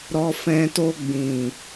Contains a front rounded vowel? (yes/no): no